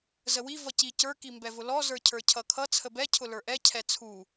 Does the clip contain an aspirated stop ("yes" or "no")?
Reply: yes